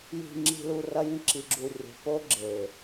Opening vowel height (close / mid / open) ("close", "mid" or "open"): close